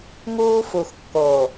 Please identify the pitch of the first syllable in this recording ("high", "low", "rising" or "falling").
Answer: high